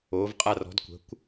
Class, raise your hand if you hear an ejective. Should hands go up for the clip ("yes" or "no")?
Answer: yes